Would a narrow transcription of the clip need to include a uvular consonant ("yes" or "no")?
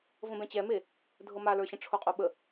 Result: yes